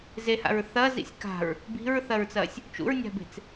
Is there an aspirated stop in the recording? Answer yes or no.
no